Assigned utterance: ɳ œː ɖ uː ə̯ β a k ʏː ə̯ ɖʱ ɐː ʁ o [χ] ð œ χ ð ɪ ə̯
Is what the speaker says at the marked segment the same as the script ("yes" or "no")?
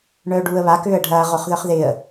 yes